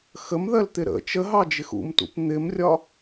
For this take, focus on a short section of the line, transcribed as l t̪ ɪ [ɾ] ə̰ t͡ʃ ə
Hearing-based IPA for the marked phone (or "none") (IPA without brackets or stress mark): ɾ